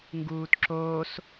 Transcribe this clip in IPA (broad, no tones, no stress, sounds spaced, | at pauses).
ŋ ɡ uː t ǁ oː s